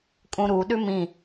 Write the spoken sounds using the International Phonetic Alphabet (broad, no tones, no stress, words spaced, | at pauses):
kʼũɾu ɗʉmĩ